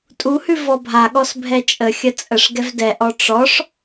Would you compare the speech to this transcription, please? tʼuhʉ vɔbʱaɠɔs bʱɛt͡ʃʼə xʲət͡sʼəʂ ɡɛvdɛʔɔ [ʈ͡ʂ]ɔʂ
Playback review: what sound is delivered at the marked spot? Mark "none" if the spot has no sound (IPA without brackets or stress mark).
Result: ʈ͡ʂ